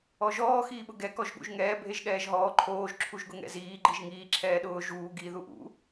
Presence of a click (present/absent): present